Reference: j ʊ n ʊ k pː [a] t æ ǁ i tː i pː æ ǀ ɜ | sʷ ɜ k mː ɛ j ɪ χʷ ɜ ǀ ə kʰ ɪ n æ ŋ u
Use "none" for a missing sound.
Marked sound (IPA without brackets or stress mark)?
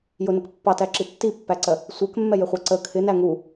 ɑ